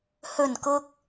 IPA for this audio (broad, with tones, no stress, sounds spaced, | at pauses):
h ɵ˨˩ n k ʊ˨ k̚